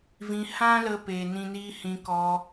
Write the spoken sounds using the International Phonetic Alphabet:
v ĩ˧ h ã˦ l ə˧ p e˨ n ĩ˧ n iː˦ h ĩ˧ k ɔ˧

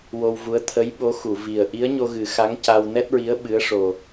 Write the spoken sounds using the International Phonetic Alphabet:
w o˧ w v u˧˥ ə̯ t̪ʰ ə˧˥ j ɓ o˧˥ x u˨˩˨ v i˨˩ ə̯ ʔ i˧˥ ə̯ ɲ o˧ ɣ ɨ˨˩˦ x a˧˥ ŋ c a˧ w n ɛ˦˥ t̚ ɹ i˧˥ ə̯ ɓ ɨ˧˥ ə̯ ʂ o˨˩

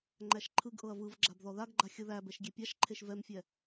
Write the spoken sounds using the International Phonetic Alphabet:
ŋ͡ǃ æ ʃ ǃʰ ɯ ɡ ʔ ɤ ɐ̯ v ɯ v ɡ͡ǁ a b ð ɔ ð a ɡ ɡ͡ǃ a xʲ ɯ ð æ b ɛ ʃ ɡʲ e pʲ a ʃ ǃʰ e ʃ v ɛ m fʲ ɛ

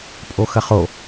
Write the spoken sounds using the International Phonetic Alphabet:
pʼ o x ɐ χ o

